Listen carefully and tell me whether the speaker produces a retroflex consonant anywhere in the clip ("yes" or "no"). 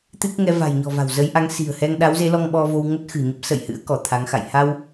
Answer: no